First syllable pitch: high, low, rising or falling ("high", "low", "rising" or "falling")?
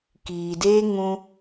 low